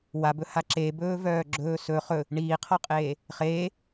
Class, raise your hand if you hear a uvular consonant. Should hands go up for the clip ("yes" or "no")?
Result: yes